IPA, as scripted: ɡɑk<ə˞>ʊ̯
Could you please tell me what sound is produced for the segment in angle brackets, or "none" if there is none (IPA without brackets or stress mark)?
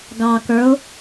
ə˞